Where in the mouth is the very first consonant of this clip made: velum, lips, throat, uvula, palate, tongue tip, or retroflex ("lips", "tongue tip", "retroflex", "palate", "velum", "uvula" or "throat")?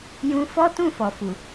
palate